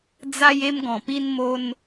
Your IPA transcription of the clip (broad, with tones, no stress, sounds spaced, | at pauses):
d͡z a˦ j e˦ m ɡ ɔ̃˨˩ p i˦ n m o˦ n